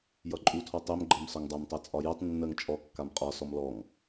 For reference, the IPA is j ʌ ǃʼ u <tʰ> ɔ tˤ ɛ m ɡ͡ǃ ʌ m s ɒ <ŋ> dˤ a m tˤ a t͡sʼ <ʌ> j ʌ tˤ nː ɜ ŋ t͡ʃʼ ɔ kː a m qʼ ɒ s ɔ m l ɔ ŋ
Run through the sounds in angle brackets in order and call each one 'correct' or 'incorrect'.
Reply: correct, correct, incorrect: ɒ

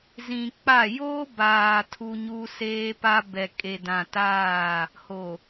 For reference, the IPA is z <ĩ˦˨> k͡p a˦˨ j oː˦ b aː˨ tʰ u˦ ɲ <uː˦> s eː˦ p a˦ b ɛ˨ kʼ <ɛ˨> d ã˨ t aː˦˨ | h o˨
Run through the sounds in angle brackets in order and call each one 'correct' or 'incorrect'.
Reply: incorrect: ĩ˨, correct, incorrect: e˨

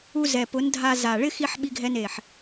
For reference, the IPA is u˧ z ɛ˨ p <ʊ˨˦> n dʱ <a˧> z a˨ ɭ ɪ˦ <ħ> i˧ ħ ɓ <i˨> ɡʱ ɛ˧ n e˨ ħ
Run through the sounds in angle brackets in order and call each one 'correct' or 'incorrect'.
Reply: correct, correct, incorrect: x, incorrect: i˧

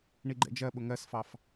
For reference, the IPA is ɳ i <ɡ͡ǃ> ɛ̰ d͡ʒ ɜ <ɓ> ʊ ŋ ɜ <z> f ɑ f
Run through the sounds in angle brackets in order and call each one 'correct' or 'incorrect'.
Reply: correct, correct, incorrect: s

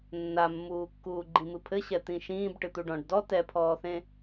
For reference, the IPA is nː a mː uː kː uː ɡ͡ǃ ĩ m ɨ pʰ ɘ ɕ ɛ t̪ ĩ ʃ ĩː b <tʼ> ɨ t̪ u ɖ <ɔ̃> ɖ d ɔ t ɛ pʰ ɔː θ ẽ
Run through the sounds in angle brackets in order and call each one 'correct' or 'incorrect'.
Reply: incorrect: ʈ, correct

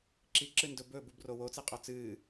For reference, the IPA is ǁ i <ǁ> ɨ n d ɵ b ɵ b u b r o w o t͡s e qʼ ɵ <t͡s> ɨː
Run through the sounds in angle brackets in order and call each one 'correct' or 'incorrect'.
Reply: correct, correct

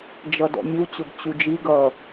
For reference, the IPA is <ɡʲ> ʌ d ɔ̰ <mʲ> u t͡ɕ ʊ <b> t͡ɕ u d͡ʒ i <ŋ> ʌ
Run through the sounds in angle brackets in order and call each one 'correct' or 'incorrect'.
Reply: incorrect: d͡ʒ, correct, correct, incorrect: ɡ

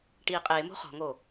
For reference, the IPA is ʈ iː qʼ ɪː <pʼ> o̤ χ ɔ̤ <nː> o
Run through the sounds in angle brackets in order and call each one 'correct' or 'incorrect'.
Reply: incorrect: m, incorrect: ŋ

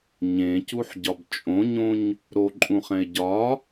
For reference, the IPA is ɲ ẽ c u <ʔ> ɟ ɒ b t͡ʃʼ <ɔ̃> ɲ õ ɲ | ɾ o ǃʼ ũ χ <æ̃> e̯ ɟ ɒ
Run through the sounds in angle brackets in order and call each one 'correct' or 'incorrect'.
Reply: incorrect: ħ, incorrect: õ, incorrect: ɛ̃

